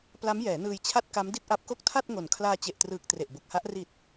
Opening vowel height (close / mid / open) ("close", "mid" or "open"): open